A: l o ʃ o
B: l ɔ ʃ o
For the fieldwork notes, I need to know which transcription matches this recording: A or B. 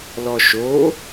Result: B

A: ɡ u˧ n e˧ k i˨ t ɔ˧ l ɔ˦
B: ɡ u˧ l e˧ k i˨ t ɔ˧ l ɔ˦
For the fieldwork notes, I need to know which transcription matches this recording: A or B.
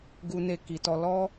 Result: A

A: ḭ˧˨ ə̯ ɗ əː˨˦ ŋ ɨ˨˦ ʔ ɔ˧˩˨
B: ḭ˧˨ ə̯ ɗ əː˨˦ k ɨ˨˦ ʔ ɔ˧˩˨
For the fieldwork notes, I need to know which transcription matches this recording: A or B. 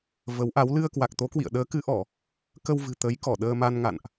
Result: B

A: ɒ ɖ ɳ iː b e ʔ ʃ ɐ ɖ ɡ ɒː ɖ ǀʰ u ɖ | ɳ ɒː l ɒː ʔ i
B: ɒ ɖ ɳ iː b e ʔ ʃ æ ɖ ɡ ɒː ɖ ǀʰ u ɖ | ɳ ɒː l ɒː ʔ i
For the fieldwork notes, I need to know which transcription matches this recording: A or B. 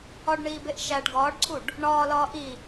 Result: B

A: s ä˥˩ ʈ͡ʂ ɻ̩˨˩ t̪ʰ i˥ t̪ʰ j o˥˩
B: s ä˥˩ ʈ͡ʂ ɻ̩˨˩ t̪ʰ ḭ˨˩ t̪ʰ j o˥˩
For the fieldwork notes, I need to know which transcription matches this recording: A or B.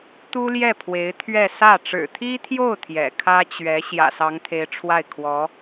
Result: A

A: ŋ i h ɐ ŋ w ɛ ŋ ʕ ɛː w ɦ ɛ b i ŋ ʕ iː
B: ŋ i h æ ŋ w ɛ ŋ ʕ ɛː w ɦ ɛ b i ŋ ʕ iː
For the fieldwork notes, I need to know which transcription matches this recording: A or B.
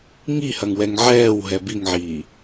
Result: A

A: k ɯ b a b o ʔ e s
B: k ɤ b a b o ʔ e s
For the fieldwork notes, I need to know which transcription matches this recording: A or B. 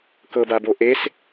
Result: B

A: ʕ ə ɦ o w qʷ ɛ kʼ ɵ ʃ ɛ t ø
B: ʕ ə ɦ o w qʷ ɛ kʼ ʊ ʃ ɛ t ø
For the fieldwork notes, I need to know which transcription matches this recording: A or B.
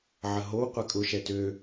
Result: B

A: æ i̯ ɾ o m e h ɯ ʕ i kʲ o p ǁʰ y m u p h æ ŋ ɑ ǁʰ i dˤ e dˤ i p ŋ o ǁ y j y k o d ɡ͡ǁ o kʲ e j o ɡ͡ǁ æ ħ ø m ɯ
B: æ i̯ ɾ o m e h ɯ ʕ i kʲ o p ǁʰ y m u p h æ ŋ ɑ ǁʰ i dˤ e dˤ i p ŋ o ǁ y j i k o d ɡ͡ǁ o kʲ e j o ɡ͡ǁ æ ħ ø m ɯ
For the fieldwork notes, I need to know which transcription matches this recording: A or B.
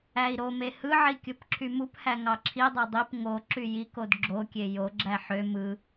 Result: B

